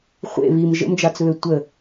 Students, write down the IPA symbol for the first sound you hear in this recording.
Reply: χʷ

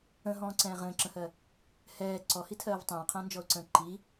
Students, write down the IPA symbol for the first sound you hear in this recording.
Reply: ə̃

